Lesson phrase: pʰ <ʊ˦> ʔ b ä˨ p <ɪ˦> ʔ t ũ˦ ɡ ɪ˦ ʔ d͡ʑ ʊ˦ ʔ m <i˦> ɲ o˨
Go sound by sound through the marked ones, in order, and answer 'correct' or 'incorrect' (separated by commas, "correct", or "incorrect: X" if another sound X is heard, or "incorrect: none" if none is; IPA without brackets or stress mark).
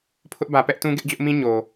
correct, incorrect: ɛ˦, incorrect: ĩ˦